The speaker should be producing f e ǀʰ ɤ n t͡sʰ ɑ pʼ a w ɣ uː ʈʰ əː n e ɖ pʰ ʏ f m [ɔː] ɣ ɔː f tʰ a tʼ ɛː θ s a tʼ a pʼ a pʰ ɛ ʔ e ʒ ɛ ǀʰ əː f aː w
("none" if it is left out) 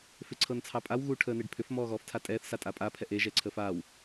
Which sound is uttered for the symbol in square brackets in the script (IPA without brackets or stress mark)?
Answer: ɔː